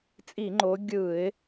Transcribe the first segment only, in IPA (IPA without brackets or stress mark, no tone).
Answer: t͡sʼ